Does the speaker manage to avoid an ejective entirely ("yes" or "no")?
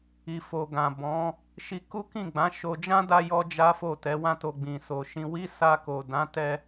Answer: yes